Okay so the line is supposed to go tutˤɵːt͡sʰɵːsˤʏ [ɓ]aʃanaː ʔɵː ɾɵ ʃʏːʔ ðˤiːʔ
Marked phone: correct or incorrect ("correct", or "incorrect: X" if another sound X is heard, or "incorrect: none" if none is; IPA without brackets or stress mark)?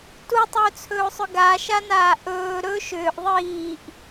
incorrect: ɡ